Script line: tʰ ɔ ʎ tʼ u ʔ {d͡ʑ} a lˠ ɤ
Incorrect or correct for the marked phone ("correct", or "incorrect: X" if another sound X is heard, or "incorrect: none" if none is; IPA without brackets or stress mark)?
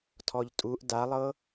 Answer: incorrect: d